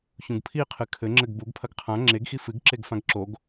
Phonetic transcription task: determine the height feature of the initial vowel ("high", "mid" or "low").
high